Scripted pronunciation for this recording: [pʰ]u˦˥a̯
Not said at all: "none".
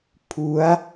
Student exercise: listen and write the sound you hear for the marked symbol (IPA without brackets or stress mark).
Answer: pʰ